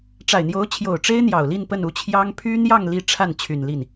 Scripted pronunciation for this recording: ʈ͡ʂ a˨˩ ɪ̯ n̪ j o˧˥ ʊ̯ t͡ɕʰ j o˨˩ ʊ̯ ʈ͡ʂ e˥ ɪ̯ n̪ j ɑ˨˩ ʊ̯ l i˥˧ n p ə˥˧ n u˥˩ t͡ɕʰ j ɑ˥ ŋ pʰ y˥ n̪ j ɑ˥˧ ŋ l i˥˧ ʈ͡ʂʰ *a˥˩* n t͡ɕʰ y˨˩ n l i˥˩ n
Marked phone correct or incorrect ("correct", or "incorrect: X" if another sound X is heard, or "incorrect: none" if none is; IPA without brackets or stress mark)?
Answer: correct